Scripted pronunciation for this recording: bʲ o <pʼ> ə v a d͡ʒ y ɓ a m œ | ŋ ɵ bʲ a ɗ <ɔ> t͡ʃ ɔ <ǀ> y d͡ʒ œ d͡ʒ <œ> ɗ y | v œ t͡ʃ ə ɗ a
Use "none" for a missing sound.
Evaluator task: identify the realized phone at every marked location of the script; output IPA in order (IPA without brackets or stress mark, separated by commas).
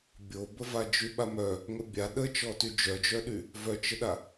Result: b, ə, t, œ